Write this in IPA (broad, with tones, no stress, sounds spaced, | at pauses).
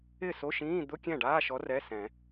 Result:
ɪ˥˩ s o˧˥˧ ʃ ĩː˧˥˧ d̪ ʊ˧˥˧ kʲ ɛ̃˥˩ ɖ aː˧˥˧ ʃ ɔ˨˥ r ɛ˧˥˧ s ɛ̃˨˩˦